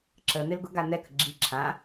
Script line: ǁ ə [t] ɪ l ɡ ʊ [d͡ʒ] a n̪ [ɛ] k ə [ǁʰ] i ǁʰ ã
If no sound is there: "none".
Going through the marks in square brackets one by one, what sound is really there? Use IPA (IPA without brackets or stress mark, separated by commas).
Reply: n̪, ɡ, ɛ, ɡ͡ǁ